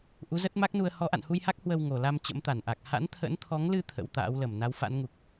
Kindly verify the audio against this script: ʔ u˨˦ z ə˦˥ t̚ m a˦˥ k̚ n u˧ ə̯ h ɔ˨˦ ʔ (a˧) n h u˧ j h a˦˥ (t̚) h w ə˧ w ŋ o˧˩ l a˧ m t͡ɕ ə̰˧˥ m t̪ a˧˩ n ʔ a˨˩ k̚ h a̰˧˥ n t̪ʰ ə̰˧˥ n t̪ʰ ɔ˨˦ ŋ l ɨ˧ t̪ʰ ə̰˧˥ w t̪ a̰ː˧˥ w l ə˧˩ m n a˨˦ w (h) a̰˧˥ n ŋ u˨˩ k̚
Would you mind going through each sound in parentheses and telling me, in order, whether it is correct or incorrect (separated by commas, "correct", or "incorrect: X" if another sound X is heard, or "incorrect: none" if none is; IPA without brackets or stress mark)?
incorrect: a̰˧˨, incorrect: k̚, incorrect: f